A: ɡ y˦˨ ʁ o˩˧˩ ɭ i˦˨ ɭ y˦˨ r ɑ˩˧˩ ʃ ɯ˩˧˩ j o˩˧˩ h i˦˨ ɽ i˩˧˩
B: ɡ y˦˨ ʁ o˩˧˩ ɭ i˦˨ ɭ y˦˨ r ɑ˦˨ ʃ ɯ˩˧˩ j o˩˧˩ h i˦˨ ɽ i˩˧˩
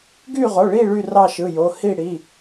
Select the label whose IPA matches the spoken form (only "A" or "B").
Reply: B